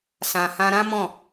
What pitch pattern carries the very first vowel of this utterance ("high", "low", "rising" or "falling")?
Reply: low